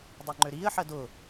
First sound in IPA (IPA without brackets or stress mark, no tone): dˤ